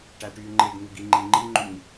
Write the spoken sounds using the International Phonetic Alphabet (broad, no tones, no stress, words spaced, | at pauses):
ʈæʈyːŋ͡ǃeɡn̪uɡ iŋ͡ǃiŋ͡ǃiŋ͡ǃyɲ